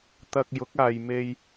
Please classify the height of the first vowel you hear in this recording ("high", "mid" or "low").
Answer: low